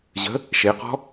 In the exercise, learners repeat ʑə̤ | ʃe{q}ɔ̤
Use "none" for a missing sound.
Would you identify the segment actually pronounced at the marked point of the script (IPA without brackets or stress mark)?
q